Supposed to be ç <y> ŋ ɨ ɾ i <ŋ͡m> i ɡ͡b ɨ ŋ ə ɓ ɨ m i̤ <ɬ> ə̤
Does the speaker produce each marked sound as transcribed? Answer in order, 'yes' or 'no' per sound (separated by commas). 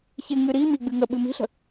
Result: no, no, yes